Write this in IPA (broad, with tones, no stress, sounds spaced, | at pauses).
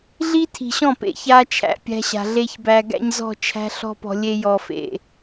ɮ i˦ tʰ i̤˨ ɕ ɔ̃˦˨ p ḛ˨ ç a˦ t͡ʃʰ æ̰˨ pʲ æ̤˦ ɕ a̤˨ ɮ e˦ ç b æ˨ ɡ æ̰˦ ɲ z ɔ̤˦˨ t͡ʃʰ æ̤˦ ɬ ɔ̤˦ p ɔ̤˨ lʲ e˦ j ɔ˨ f ḛ˨